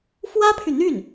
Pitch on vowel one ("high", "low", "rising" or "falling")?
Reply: high